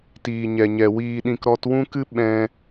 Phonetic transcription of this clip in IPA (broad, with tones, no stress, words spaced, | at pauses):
tiː˨ ɲɛ˨ɲɛ˨ wiː˧ɗĩ˧k ɾɔ˧twũ˦kɨ˦ ɓɛ̃˦